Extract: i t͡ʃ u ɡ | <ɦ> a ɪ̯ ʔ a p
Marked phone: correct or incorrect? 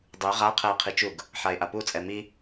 incorrect: ħ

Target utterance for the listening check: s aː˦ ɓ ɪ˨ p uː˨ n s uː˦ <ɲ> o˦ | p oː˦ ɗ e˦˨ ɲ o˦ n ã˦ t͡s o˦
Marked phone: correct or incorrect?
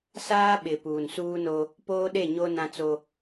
incorrect: n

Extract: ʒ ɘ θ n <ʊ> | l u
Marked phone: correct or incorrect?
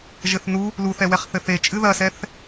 incorrect: u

